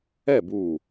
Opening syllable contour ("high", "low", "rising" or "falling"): falling